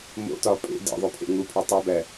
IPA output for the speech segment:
m o̰ t ɒ pʼ ḛ d ḛ ðˤ o pʰ ḛ ŋ u pʰ e tˤ o b æ

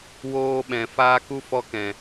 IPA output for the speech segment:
w oː˧ ɓ ɛ̃˨ f aː˦ k u˦ f ɔ˧ k ɛ̃˨

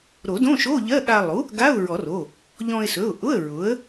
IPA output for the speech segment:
ɾ o˨˩˦ d õ˧˥˧ ʃ o˧˥˧ ʎ ɜ˧˥˧ ɠ a˧ lˠ u˩˥ | ɡ a˧˥˧ ʊ̯ ɹ ɔ˨˩˦ r o˩˧˩ | ʎ ɔ̃˧ ɪ̯ s ɵ˩˧˩ ʊ̯ ʔ ʊ˧˥˧ ə̯ ɹ ʊ˩˥ ə̯

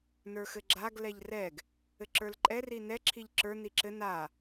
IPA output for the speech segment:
n ə˞ x ɘ ɡ͡ǁ a ɡ l ɛ ʎ r ɛ ɡ | ɘ ǁ ə˞ l ǃʼ ɛ r i n ɛ ǁʰ i ʎ ǁ ə˞ n i ǁ ɘ n a

